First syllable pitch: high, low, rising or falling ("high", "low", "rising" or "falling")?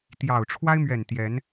low